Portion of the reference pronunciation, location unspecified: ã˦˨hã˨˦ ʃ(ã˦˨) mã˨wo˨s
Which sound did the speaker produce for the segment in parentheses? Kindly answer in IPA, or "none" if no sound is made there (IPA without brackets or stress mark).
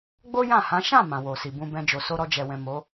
ã˦˨